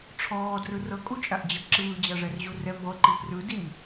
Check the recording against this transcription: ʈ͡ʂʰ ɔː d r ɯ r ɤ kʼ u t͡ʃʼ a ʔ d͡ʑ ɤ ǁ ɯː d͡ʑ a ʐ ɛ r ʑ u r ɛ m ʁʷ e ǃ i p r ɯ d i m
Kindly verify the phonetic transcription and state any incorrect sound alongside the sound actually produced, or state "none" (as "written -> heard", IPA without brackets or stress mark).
none